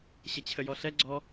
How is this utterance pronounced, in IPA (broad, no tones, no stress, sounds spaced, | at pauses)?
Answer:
ɕ ə t͡ɕʰ ə j ɔ ɬ ɛ ɡ͡ǀ ɔ